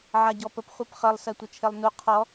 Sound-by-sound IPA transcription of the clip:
ʕ a ɟ ɔ p ə p χʷ e p χ ə lˠ s ɜ tʷ ə t͡ʃʰ e lˠ n u qʰ ɔ

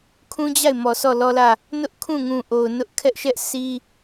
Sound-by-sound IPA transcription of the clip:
kʰ ũ˦ d͡ʑ a˦˨ ɪ̯ m ɔ˨ sʰ ɔ˦˨ l ɔ˦ l ä˦˨ | n ʊ˦ ʔ kʰ ũ˦˨ ŋ ũ˨ ʔ o˨ ʊ̯ n ʊ˦ ʔ kʰ ɛ˦ ʔ ʃ ɛ˦ ʔ sʰ i˦

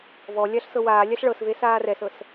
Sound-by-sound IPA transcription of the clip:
v ɔ lʲ a ɬ s ɤ w aː lʲ a ɬ ɭ ɤ s v e s aː r ɛ s ɤ s

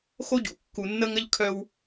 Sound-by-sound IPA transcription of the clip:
x o˦ ɟ ṵ˨ kː u˨ nː ə˦ ŋ ə˦ ʎ kʰ œ˦ w

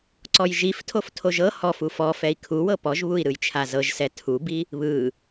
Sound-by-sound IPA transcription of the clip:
ǀ ɔ j ʒ i f tʰ o f tʰ o ʒ ɤ h ɔ f u f ɔ f ɛ i̯ kʰ u w ɤ p ɔ ʒ β u i̯ ɾ ɯ j t͡ʃʰ a z ɤ ʒ s ɛ tʰ u b i | β ɯ

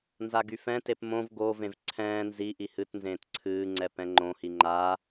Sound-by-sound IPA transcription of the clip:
n z a ɡ y f ɛ̃ t e p m õ v ɡ o v ẽ v ǀʰ ɛ̃ː n z i ʔ i h ɨ t n z ẽː t ǀʰ ɨː ŋ͡ǀ ɛ p ɛ̃ ŋ͡ǃ õ h i ŋ͡ǃ a

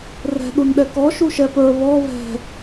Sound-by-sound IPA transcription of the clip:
r ɛ̤ ɗ u n ɗ ɛ k ɔ ʃ u ʃ ɛ p ə˞ β ɔ β ɛ̤

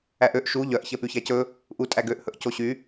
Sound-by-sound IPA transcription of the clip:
æ ʔ ø ʔ ʃ u ʎ œ ʔ ç ɛ p y ç æ c ɵ | ʔ u tʼ æ ɡ ø ʔ h ɵ ʔ c o ɕ y

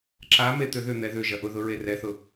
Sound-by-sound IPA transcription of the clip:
ǁ a m e t̪ ʏ ð ʏ n̪ ɛ ð ʏ ʒ ɐ ʔ ʊ ð ʊ ɹ e r ɛ θ ʊ

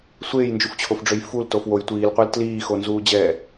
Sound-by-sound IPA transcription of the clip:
sʷ eː j n d͡ʒ u f t͡ɕʰ o f ɖ͡ʐ ø j f u l t o f w o j tʷ iː l qʷ ɛ l t l iː x o n z uː d͡ʑ ɛː

